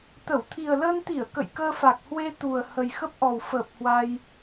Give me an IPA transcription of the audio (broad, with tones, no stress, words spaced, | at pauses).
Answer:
t̪ə˧˩w t̪ʰi˨˩ə̯ləː˧nt̪i˧˩ə̯ kə̰˧˨jkəː˧fa˨˩k̚hwe˧ t̪u˨˩ə̯ hə˨˩jxə˦˥p̚ʔɔ˨˩w fəː˨˩p̚ hwa˧j